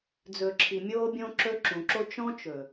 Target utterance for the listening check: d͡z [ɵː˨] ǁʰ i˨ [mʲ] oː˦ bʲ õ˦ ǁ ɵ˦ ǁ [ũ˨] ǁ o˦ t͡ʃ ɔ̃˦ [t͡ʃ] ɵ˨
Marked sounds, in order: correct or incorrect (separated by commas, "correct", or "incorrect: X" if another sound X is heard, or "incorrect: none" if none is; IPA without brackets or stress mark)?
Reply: incorrect: ɵ˨, correct, correct, correct